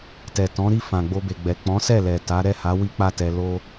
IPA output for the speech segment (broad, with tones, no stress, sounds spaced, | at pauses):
t ɛ˨ t ɔ̃˨˦ ɾ i˦˨ f ã˨ ɡ͡b o˧ b e˨ ɡ͡b ɛ˨ k͡p ɔ̃˨˦ s ɛ˦˨ l ɛ˨ t a˨˦ ɾ ɛ˦˨ h a˨˦ w i˦ k͡p a˦ t ɛ˧ l o˦